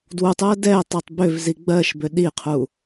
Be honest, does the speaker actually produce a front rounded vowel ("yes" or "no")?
yes